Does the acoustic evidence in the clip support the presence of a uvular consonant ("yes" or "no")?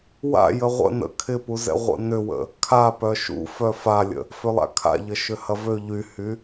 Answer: yes